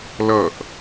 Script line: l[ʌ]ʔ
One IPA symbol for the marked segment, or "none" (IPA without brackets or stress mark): ʌ